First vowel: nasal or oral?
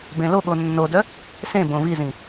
nasal